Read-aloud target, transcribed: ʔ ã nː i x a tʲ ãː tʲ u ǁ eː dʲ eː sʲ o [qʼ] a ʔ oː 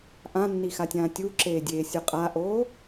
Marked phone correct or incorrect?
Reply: correct